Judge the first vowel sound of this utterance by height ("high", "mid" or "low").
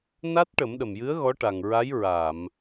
low